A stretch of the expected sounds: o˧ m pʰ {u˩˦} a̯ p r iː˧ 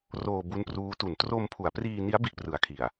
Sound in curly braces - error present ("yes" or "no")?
no